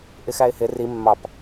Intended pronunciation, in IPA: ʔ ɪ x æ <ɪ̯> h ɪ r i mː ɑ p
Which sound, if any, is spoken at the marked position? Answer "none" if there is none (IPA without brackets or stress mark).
ɪ̯